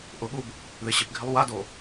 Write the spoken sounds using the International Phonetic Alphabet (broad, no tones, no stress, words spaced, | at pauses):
ʔʊɠub | ðɪɕɪpɡʱɪlˠ wado